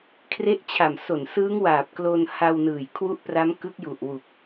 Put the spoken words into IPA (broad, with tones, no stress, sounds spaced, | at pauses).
kʰ r e˦˥ ʔ t͡ɕʰ a˨˩ m s o˨˩ n s ɯː˦˥ ŋ w aː˨˩ p̚ k l o˧ n h a˧ w n ɯː˨˩ j kʰ w u˦˥ ʔ p r a˦˥ m k ɯ˦˥ k̚ j u˨˩ ʔ w u˨˩ k̚